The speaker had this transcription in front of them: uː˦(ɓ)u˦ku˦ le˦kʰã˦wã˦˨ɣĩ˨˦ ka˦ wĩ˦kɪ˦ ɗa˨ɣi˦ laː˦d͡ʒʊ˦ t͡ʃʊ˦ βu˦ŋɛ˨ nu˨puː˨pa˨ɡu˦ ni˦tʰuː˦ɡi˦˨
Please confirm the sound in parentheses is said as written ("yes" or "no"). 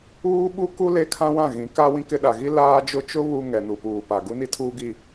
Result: yes